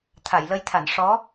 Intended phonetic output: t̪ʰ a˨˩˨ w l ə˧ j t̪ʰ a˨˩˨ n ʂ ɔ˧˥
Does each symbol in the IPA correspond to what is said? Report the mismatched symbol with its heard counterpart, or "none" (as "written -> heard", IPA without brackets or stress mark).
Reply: w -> j